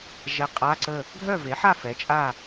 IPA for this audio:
ʒɛ˧˥qʼa˧˥˧ǀə˥˨ | ɡʱœ˥˨ve˩˥ħa˥˨ fɛ˩˥t͡ʃʼa˥˨

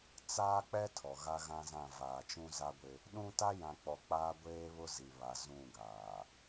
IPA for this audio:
t͡saː˦k͡pɛ˦ tʰɔ˨ɣa˦ɣã˦zã˦˨ vaː˨t͡ʃũ˦za˦ɡʷɪ˦ | ɗũ˦ ta˦jã˨k͡pɔ˨ k͡paː˦ɡʷeː˦βʊ˦zi˨ βa˨zũ˦˨ɡaː˨

